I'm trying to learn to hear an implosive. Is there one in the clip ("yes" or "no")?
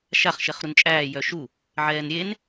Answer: no